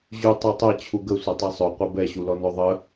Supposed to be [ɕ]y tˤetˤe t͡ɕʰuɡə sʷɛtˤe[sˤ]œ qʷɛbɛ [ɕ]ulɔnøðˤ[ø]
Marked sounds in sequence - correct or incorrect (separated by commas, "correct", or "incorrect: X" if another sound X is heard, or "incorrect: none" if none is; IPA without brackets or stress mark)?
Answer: incorrect: ʑ, correct, correct, incorrect: ə